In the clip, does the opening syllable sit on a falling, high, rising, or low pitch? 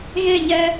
falling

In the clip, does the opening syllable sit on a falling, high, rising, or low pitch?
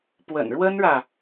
low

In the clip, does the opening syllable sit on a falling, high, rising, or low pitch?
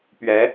rising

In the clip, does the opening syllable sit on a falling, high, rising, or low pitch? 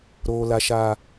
high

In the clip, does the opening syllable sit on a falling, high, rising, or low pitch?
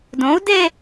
rising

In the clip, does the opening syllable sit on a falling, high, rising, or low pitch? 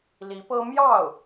rising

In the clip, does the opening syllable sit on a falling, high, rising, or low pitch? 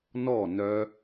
falling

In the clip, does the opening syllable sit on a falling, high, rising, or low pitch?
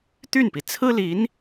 falling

